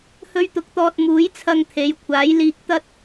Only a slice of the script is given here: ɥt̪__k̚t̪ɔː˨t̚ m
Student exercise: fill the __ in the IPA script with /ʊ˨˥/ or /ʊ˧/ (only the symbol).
ʊ˨˥